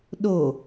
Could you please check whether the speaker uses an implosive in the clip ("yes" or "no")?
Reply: yes